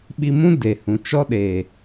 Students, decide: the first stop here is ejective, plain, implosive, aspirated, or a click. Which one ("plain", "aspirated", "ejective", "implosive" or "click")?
implosive